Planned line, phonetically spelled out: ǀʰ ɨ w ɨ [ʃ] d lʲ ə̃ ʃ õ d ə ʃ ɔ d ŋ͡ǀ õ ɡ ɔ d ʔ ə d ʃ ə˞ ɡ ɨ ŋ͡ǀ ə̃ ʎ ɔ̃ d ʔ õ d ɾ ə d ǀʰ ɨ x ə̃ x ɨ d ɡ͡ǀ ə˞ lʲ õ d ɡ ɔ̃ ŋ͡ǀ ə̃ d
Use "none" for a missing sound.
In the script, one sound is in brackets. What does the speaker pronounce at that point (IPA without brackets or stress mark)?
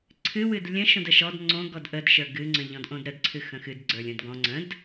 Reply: none